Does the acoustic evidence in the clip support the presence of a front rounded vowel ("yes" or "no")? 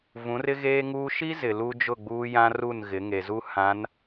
no